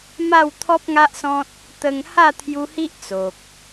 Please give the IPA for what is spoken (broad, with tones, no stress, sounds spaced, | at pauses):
m a˥˧ w t̪ʰ ɔ˦ p̚ ŋ a˦ ʔ s ɔ̃˦ t̚ | t̪ ə˧ ŋ h a˥˧ t̪ʰ j u˧ h i˦ ʔ t͡s o˨ k̚